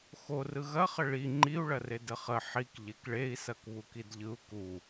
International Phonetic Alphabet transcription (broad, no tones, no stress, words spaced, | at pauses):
xorɯ ɣɐχə ɭi ŋ͡ǃiu̯ɭɐred əχə ħik ʎekɭei̯sɐk βukidʎɯu̯ ku